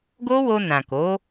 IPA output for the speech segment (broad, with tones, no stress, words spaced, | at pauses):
ɡo˦wo˧nã˨ ko˨˦